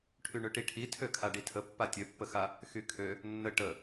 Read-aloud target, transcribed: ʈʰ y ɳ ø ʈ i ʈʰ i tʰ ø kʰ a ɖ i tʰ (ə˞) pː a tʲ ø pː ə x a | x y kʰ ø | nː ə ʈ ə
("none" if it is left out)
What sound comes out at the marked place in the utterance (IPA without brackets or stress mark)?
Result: ə